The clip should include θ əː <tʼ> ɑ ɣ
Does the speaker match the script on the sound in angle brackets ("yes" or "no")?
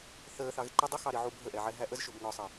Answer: no